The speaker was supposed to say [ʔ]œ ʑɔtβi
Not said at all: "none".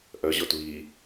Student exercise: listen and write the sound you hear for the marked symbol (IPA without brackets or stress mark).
ʔ